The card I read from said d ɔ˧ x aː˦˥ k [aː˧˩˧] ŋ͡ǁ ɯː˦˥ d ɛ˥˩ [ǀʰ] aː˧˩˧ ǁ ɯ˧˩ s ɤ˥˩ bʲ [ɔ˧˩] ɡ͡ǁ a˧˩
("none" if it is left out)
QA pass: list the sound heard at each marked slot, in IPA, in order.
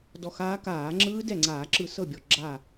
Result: aː˧˩˧, ŋ͡ǀ, ɔ˧˩

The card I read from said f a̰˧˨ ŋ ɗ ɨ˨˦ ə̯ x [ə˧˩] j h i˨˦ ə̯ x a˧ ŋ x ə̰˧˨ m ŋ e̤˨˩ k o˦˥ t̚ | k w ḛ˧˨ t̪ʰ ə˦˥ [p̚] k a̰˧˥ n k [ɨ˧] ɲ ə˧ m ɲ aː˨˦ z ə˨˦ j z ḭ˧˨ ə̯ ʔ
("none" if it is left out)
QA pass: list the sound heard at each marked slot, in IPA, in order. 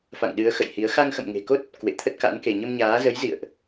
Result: ə̰˧˨, t̚, e˧

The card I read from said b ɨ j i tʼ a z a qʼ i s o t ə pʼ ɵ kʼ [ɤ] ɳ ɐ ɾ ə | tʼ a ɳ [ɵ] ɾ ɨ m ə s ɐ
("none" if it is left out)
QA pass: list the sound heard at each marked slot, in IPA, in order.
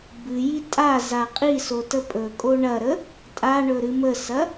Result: o, ɵ

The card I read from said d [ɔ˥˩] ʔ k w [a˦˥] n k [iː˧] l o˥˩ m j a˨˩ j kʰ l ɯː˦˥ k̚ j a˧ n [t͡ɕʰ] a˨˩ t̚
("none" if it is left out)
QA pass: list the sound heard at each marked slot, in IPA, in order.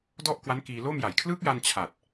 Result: ɔ˥˩, a˦˥, iː˧, t͡ɕʰ

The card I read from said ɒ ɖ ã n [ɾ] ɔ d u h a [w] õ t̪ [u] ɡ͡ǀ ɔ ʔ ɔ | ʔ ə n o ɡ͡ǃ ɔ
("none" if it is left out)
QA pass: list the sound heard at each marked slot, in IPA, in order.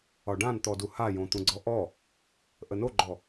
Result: t̪, j, ũ

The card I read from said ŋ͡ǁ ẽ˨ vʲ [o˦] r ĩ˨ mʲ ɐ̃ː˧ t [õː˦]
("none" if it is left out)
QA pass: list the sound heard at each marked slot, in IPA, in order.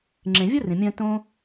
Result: o˦, õː˦

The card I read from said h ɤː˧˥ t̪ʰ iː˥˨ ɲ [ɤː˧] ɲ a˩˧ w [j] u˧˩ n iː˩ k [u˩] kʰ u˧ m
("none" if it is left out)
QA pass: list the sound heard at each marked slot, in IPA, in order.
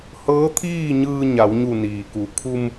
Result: ɯː˧, ɲ, u˩

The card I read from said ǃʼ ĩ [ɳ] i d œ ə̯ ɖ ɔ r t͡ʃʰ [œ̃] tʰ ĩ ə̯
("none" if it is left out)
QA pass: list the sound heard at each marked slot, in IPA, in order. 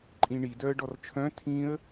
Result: ɳ, œ̃

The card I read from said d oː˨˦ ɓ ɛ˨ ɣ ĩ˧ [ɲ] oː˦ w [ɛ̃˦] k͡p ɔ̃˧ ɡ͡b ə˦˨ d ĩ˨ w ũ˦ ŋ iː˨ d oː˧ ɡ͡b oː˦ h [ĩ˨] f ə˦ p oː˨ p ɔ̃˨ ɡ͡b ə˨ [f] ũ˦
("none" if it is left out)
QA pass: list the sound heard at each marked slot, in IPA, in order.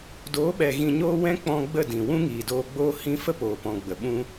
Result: ɲ, ɛ̃˦, ĩ˦, ɓ

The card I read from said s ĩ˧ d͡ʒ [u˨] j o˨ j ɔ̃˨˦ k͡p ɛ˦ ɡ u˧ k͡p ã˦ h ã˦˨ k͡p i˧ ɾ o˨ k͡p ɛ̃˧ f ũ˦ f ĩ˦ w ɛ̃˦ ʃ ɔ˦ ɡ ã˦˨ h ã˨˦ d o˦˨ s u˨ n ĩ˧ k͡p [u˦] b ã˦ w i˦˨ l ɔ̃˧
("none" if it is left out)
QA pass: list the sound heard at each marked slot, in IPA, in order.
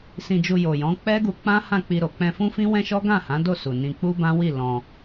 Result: u˧, u˦

